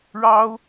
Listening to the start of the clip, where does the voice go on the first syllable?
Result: high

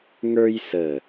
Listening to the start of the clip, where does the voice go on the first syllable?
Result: high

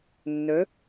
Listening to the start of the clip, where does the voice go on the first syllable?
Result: rising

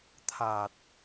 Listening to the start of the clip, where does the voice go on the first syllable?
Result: low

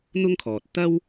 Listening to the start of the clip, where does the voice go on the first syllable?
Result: high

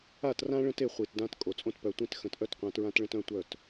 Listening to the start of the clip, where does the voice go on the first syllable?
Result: falling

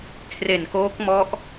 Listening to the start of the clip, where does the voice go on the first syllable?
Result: low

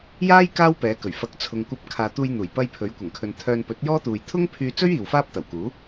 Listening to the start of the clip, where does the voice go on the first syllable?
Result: high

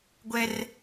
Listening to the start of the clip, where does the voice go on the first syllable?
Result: high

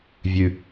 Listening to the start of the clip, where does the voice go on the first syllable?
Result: low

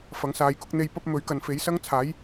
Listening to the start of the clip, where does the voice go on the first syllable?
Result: rising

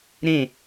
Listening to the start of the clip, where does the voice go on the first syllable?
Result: falling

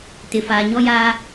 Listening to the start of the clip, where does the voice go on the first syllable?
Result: low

